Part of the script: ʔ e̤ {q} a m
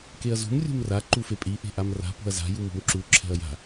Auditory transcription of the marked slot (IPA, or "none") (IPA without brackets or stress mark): ʔ